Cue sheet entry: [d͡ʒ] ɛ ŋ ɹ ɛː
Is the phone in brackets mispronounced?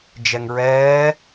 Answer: no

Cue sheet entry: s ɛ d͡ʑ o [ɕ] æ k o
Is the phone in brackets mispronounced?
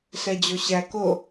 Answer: no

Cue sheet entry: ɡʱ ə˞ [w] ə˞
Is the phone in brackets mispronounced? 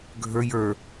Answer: yes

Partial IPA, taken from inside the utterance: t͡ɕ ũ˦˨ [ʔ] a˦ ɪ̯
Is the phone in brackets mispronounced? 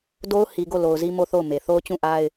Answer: no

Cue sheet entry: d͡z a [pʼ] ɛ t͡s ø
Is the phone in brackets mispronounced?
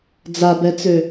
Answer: yes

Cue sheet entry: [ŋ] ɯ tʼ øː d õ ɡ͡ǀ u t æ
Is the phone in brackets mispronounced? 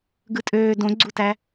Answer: yes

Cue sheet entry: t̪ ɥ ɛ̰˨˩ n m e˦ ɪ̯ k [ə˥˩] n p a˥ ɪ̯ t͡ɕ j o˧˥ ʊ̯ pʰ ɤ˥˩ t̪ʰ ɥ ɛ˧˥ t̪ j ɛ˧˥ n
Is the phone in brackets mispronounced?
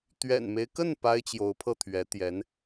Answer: no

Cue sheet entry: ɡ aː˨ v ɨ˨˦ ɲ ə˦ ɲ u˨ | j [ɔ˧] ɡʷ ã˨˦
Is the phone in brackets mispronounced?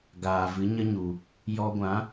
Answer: no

